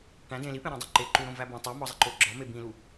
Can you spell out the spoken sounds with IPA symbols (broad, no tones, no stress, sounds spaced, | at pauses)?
ʈ æ̃ d ẽ l i p ẽ ɾ æ̃ dˤ o ǃ e ǃ u ɾ õ v æ b õ tˤ o m ɒ zˤ e ǃ o ɡ͡ǁ ɒ m e b ĩ l u